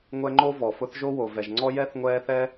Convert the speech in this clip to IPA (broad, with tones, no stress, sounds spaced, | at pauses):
ŋʷ ɛ˦ ŋ͡ǃ o˥ v ɔ˩ f ʊ˦ θ ʒ o˥ w o˩ v ɛ˩ ʒ ŋ͡ǀ ɔ˦ j ɛ˥ θ ŋʷ ɛː˦ θ ɛ˥